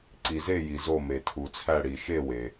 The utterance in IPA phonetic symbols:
ǀ i˩ z e˦˨ j i˩ z o˦˨ m e˩ tʰ u˩ t͡sʰ æ˦˨ ɽ i˩ ʃ e˦˨ w e˩

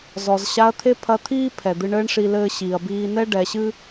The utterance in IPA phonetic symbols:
z ɔ˩ z ɕ a˧˥ ɐ̯ t̪ʰ e˥ pʰ ɐ˧˥ t̪ʰ iː˥ pʰ ɛ˩ d̪ ɨ˧ ɳ ɘː˥ ɳ ʂ i˧ l ɘː˧ ɕ iː˩ ɐ̯ b iː˧ n ɛ˥ ɖ ɛ˩˧ ɕ ɨ˥

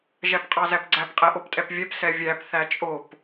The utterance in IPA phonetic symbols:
ʒ æ p qʼ ɑ z æ p ɡ͡ǀ æ p qʼ ɛ ʔ o p tʼ ɛ p vʲ ɛ p s ɛ vʲ æ p θ æ t͡ʃʼ o p

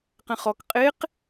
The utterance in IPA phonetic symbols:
q ɛ̃ χ ɔ k qʼ e q

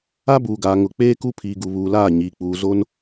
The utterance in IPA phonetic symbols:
a˦ b uː˨ ɡ aː˨ ŋ ʊ˨ k͡p eː˦ k u˦ pʰ iː˨ ɡ u˨ β uː˨ l aː˦˨ ɲ iː˨ k͡p uː˨ z o˦ n

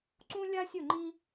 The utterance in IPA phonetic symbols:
ǀ ũ˥ lʲ a˥ sʲ ɵ˥˧ ŋ͡ǃ ĩ˥

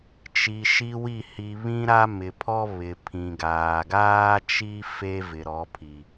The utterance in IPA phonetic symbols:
t͡ʃ i˨ ʃ i˦ w i˦˨ h i˨ β ĩ˦ ɾ a˦ m ɪ˨ pʰ ɔ˦ β ɪ˨ pʰ ĩ˨ ɡ aː˨ ɡ aː˦ t͡ʃ i˦ f e˦ v ɪ˨ ɾ ɔ˨˦ pʰ i˨

